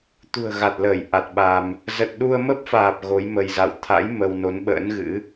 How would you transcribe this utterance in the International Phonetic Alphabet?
t̪ ṳ˨˩ ə̯ ɣ a˨˩ t̚ l əː˧˩ j ʔ a˨˩ t̚ ɓ a˧ m | z ə˨˩ t̚ ɗ u˧ ə̯ m ə˦˥ p̚ f aː˨˩ p̚ ɣ o˨˦ j m ə˧ j z a̰˧˨ w t̪ʰ a̰˧˥ j m ə˧ w n o˨˦ n ɓ ə̰ː˧˥ n ɣ ɨ̰˧˥

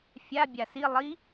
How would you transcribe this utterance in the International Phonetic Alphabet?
fʲ a bʲ a s i lˠ i

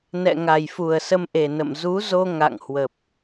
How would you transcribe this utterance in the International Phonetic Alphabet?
n ɛ̰˧˨ ŋ a˨˩ j f u˨˩ ə̯ s ə˧ m ʔ e˨˩ n ə̰˧˨ m z u˨˦ z o˧ ŋ a̰˧˨ ŋ h w ə˨˩ p̚

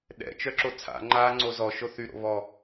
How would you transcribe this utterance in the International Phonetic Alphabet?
ɗ ɛ̰ t͡ʃ œ ǁ o t͡sʰ a̰ ŋ͡ǃ a ŋ͡ǀ o z ɔ ʃ o θ y ɾ o̰ β ɔ

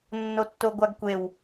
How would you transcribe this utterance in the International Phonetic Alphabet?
nː o tː o ɡʷ a ɡ kʷ e w

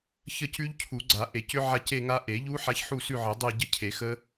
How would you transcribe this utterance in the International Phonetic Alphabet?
ç ə˥˧ c ʉ˦˥ ʎ cʰ u˨˩˦ ɡ͡ǀ a˨˩˦ ʔ e˨˩˦ c ʏ˦˥ ʕ a˥˧ c e˥˧ ŋ a˦˥ ʔ e˨˩˦ ʎ u˦˥ ħ a˦˥ ç ħ u˥˧ s ʉ˥˧ ʕ ə˨˩˦ dˤ e˥˧ ɟ ə˥˧ cʰ e˨˩˦ x ə˦˥

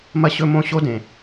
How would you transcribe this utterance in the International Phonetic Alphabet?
m ɐ˥ ɕ ɵ˥ m õ˥ ɕ o˥ d ẽ˩

